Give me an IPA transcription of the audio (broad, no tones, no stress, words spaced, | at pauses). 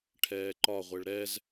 ʈʰɛːǃɒʁʷeɭ ɾɛz